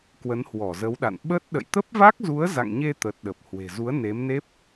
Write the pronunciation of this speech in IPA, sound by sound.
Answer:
k w ə˨˦ n h w ɔ˧˩ z ə˨˦ w ɗ a̰˧˨ n ɓ ə˦˥ t̚ ɗ ə̰˧˨ j t̪ ə˦˥ p̚ v a˦˥ k̚ z u˨˦ ə̯ z a̰˧˨ ŋ ɲ e˧ t̪ ə˨˩ t̚ ɗ ə˨˩ p̚ h w e̤˨˩ z u˨˦ ə̯ n e˨˦ m n e˦˥ p̚

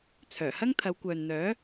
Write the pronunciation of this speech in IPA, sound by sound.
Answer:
t͡sʰ œː˨˩ h ɐ˥ ŋ t̪ʰ ɐ˨˧ w kʷ œː˨ n n̪ œː˨˥

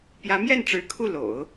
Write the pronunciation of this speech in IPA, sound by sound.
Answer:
p j ä˧˥ m j ɛ˥˩ n ʈ͡ʂ ɻ̩˧˥ kʰ u˥˩ l o̰˨˩˦ ʊ̯

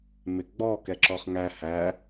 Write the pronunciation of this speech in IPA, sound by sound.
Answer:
m ɪ ɡ͡b ɔ k ɛ ǁ ɔ χ ŋ æ h æ

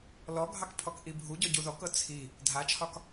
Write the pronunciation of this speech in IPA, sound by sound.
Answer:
l ɔ ɡʱ ɑ k pʰ ɔ k ʔ i bʱ u ɟ ɔ ɟ u ð ɔ k ɤ t͡sʰ i | dʱ a t͡ʃʰ ɒ k

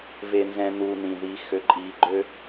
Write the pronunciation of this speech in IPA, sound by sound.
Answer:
v e˨ n z ɛ̃˨ n uː˨ n ĩ˨ ð i˨˦ x ø˨ ǃʼ iː˨ ɡ͡ǃ ø˦

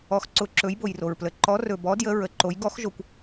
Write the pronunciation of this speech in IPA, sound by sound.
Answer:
ɔ˧˥ x ǀ ʊ˧˥ ǁ ɵ˧˥ j b o˧ j r o˧ ɹ p l ə˧ ǃ ɔ˧˥ r ɵ˧ b ɔ˧˥ d j ə˧˥ ɹ ə˧˥ ǃ o˧˥ j ɡ ɔ˧˥ x ʒ o˧ kʷ

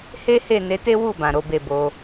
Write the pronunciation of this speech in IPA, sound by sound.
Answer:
h e˦ h e˦˨ n e˨˦ t e˦ w u˦˨ b ã˨ ɾ o˨˦ b e˦˨ b o˧

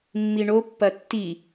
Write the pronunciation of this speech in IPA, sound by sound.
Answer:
mː i ɳ o pː ɐ tː i

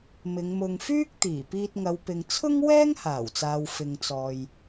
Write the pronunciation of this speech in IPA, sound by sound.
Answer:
m ɪ˨˧ ŋ m ʊ˧ ŋ f yː˥ k̚ t̪ iː˨˩ p iː˧ t̚ ŋ ɐ˨˧ w p ɪ˨ ŋ t͡sʰ ʊ˥ ŋ w ɛː˥ ŋ h aː˨˩ w t͡s aː˨ w f ɪ˧ ŋ t͡s ɔː˧ j

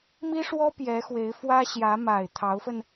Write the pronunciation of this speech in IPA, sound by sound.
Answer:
m i˥ ʂ w ɔ˥ p j ɛ˧˥ x w e˧˥ ɪ̯ f w ä˥ ɕ j ä˧˥ m a˨˩ ɪ̯ t̪ʰ ɑ˧˥ ʊ̯ f ə˧ n

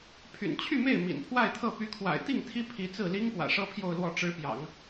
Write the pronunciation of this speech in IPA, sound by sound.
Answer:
pʰ y̰˨˩ n t͡ɕʰ y˥˧ m e˥˩ ɪ̯ m ḭ˨˩ n pʰ w a˥˧ ɪ̯ t̪ʰ ɤ˥˩ p y˧˥ kʰ w a̰˨˩ ɪ̯ t̪ i˥˩ ŋ t̪ʰ i˥ pʰ i˧˥ t͡s ɹ̩˥˩ l i˥ ŋ p w ä̰˨˩ ʂ ɤ˥ pʰ j o˥˧ ʊ̯ l w ɔ˥˩ ʈ͡ʂ ɻ̩˧˥ p j ɑ̰˨˩˦ ŋ

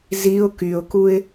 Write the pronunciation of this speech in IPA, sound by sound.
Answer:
z i ʊ̯ k y ʊ̯ k u ɪ̯

